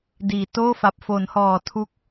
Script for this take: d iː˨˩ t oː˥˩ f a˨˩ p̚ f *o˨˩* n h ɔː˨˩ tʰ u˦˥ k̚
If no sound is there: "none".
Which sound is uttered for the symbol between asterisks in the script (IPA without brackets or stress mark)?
o˩˦